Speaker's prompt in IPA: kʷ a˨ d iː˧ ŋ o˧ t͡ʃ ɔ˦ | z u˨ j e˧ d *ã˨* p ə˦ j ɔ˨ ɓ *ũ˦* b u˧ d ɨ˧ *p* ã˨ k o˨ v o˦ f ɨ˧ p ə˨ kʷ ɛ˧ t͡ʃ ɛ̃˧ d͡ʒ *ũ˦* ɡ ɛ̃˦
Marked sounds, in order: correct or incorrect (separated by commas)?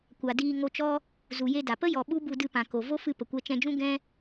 incorrect, incorrect, correct, correct